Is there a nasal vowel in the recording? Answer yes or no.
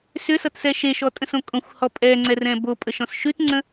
yes